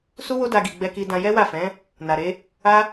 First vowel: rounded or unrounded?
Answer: rounded